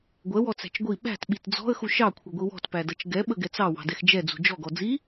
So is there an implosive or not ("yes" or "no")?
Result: yes